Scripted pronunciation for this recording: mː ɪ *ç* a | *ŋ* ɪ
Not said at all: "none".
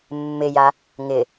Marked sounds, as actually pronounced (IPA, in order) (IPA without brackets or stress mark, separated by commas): j, ŋ